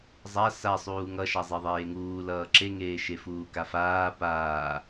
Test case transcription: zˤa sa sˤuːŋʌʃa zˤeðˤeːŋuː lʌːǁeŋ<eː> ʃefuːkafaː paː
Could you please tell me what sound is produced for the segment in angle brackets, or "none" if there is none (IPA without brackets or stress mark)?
eː